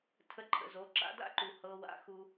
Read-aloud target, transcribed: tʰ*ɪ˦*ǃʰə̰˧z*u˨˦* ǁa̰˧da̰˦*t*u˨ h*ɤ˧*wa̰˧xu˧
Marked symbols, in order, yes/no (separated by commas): no, no, no, yes